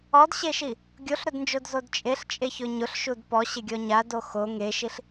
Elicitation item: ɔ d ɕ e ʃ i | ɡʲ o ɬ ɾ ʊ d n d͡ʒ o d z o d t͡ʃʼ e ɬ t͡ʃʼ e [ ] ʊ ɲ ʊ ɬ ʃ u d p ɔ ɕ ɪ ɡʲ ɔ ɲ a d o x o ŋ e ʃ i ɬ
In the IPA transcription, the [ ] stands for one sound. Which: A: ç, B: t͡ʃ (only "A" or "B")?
A